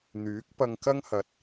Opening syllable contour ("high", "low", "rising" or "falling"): rising